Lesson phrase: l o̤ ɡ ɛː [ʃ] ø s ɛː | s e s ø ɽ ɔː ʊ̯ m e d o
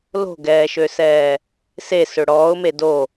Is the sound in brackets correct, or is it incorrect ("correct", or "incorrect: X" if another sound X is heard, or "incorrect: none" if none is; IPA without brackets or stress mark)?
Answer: correct